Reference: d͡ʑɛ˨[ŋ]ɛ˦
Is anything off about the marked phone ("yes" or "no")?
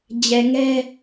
no